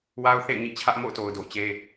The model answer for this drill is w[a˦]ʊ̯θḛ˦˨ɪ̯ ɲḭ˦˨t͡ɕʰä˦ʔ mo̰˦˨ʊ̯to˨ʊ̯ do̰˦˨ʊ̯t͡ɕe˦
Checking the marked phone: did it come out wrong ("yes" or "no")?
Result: no